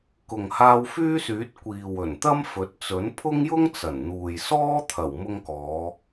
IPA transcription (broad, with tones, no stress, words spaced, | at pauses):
kʊ˨ŋ haː˧wfyː˥syː˨˥t̚ kʷiː˨w ɵ˨˩n t̪ɐ˥mfɵ˨˥t̚ t͡sɵ˨˥npʰʊ˥ŋjʊ˥ŋ t͡sɐ˨˩nn̪uː˨jsɔː˥ t̪ʰɐ˨˩wmʊ˧ŋkɔː˨˧